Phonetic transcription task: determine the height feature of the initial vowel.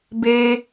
mid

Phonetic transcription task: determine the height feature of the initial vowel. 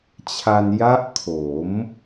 low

